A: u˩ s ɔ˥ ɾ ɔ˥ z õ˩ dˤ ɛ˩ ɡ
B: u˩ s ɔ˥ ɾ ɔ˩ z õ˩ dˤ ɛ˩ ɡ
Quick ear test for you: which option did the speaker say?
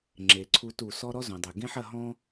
A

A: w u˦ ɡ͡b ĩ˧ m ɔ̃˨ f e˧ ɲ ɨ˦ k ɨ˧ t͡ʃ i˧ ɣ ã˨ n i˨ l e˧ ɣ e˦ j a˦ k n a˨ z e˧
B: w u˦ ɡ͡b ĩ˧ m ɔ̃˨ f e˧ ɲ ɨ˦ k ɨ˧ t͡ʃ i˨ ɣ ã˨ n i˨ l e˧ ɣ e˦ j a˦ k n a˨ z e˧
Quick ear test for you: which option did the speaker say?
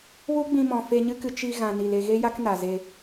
A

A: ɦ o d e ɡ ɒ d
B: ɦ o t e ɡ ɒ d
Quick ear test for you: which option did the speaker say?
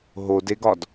A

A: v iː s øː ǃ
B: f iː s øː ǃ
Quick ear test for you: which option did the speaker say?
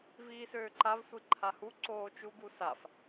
A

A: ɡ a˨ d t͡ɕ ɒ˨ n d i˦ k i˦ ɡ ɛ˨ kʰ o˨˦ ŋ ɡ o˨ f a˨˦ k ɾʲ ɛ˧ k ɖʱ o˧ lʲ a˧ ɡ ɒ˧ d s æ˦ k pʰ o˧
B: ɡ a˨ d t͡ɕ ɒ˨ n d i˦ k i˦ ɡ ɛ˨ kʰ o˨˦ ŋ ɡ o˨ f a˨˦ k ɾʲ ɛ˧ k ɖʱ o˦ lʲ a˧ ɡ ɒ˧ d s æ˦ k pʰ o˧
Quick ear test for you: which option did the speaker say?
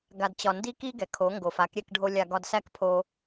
A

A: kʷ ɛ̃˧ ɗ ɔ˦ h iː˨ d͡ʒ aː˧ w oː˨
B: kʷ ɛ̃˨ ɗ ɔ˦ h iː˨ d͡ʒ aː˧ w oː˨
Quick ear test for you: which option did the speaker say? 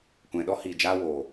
B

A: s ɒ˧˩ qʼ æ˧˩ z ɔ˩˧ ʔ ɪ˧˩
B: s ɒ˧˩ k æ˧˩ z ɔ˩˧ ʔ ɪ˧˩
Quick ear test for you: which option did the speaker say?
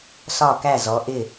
B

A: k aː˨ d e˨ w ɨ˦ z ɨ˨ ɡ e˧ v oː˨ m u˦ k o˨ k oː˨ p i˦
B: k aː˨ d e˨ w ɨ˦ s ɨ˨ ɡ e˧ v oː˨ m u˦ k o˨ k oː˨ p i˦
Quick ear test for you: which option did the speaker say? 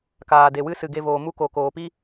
B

